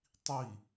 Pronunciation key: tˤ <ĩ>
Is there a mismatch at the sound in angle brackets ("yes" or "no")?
yes